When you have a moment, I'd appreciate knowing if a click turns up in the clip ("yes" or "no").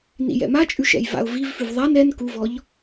no